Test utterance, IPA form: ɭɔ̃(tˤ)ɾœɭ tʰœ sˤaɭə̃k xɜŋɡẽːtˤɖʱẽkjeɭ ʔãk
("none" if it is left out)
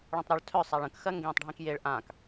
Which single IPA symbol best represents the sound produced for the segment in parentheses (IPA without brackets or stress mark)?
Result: tˤ